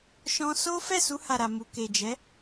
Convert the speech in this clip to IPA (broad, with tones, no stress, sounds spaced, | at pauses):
ʃ ɔ̃˦ s o˦ f ɛ˦˨ s u˧ h a˨ ɾ a˨ m u˨ k e˨ d͡ʒ ɛ˨˦